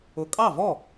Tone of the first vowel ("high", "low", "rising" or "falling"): low